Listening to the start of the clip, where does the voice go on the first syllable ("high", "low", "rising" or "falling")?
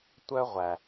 high